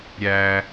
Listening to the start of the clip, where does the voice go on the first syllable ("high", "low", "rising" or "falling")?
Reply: low